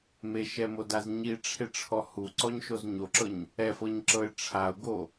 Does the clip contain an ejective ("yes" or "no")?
no